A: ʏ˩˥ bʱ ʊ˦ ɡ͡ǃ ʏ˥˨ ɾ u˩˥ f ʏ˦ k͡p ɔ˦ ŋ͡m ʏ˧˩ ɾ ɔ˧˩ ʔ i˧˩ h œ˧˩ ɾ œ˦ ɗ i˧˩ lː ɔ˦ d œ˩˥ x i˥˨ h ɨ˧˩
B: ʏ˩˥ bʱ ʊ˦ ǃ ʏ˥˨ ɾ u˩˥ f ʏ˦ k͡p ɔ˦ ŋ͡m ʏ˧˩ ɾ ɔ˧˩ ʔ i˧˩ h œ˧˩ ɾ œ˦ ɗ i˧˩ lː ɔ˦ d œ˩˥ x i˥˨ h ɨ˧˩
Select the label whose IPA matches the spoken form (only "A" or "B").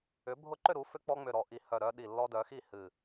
B